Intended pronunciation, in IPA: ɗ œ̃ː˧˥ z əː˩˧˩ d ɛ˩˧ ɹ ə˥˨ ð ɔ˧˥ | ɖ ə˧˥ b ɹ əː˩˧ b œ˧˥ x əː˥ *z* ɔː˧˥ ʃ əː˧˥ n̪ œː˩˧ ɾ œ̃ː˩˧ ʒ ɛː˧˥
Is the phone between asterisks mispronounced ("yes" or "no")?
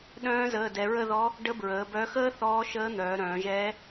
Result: yes